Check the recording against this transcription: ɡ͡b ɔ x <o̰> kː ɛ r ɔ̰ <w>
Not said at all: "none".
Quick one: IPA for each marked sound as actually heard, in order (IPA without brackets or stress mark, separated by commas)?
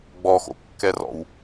o̰, w